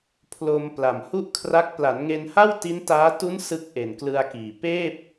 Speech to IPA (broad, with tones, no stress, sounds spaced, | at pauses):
pʰ l o˧ m p l a˨˩ m h u˥˩ ʔ kʰ r a˦˥ k̚ p l a˩˦ n ŋ e˧ n h a˥˩ w t i˦˥ n t aː˦˥ t u˦˥ n s ɯ˦˥ k̚ ʔ e˨˩ n k l ɯ˧ a̯ k iː˨˩ p eː˥˩ p̚